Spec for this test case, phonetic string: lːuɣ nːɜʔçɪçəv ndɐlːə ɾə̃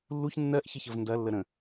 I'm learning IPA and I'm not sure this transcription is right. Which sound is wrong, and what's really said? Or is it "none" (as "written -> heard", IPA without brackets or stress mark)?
ɣ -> ç